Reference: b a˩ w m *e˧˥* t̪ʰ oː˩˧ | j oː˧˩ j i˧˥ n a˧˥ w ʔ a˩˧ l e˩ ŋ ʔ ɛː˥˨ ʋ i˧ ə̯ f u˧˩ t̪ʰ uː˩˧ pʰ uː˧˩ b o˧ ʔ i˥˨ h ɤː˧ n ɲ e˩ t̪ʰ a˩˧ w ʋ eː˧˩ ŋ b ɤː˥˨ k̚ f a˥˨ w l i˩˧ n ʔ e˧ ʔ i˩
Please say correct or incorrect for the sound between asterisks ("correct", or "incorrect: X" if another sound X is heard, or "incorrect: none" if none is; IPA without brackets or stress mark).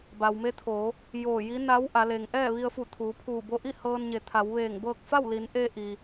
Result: correct